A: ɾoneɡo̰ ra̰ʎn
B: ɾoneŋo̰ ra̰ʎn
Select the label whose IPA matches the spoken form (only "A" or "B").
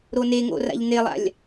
B